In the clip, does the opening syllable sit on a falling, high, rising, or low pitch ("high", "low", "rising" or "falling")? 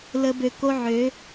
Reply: high